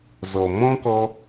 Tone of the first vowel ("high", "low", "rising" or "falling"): low